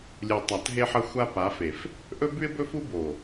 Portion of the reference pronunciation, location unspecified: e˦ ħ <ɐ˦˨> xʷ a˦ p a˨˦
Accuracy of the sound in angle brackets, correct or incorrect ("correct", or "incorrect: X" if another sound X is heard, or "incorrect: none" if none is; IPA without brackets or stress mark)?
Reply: incorrect: ɐ˦